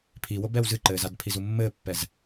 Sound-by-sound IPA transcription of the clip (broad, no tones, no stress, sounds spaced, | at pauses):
pʰ i w o b ɛ w z ɨ ǃ ɘː z a d pʰ i z u mː ɘː pː ɛ z